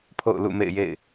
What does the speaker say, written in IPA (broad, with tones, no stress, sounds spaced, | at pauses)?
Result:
pʰ o̰˦˨ ʊ̯ l ṵ˦˨ m ḛ˦˨ ɪ̯ j ḛ˦˨ ɪ̯